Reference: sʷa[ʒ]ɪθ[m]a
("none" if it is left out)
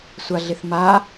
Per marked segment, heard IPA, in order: ɮ, m

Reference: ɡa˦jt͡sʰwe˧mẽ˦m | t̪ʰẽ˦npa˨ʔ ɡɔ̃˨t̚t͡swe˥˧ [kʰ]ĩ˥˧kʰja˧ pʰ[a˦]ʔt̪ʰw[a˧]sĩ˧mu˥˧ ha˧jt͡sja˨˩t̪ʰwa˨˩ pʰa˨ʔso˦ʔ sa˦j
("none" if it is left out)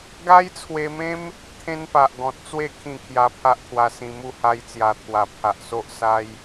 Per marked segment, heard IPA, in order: kʰ, a˦, a˧

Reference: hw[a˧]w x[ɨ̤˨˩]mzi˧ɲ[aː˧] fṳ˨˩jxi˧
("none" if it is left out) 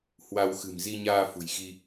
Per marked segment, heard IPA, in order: a˧, ɨ̤˨˩, aː˧

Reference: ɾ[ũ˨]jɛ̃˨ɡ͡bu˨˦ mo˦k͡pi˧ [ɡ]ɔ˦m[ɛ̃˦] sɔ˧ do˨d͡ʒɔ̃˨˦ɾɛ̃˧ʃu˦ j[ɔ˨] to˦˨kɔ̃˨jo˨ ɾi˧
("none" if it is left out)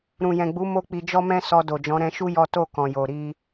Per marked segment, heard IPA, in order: ũ˨, d͡ʒ, ɛ̃˦, ɔ˦

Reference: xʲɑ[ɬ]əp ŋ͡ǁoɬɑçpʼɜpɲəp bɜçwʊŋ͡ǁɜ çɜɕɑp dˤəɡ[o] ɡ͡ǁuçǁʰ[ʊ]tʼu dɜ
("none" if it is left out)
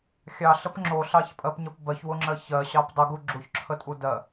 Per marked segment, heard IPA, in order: ɬ, u, ə

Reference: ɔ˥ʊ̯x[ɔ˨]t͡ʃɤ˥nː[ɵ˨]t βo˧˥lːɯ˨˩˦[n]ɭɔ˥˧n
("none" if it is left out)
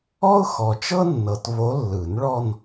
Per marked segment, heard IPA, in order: ɔ˨, ɤ˨, n

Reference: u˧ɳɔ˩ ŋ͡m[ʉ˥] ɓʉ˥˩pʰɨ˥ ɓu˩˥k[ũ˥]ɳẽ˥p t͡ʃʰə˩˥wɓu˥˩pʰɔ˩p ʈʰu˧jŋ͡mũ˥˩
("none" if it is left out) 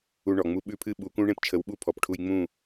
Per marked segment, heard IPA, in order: u˥, ũ˥

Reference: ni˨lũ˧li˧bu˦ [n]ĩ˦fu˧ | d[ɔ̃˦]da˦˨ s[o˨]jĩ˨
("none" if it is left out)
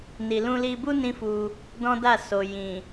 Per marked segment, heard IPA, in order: n, ɔ̃˦, o˨

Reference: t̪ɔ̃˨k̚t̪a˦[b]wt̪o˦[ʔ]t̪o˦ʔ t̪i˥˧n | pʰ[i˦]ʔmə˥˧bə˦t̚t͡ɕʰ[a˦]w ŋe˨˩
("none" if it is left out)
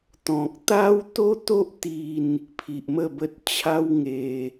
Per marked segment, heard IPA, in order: none, none, i˨, a˦

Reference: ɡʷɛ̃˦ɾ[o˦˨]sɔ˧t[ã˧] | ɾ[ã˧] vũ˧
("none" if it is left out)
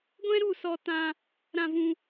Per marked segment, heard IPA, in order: u˦˨, ã˧, ã˧

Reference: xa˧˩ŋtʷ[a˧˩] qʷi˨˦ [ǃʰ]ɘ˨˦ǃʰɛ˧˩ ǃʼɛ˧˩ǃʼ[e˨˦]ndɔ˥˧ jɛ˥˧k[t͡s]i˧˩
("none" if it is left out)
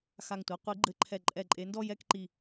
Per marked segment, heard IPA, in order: a˨˦, ɡ͡ǃ, e˨˦, ǃ

